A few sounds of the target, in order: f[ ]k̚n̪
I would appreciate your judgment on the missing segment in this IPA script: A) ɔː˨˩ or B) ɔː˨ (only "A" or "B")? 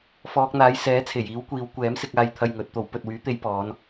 B